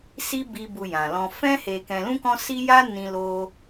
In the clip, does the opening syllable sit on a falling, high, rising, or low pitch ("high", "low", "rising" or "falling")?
high